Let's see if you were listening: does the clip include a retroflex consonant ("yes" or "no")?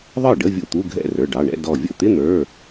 yes